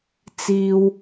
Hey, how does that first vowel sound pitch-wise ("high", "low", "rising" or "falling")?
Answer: low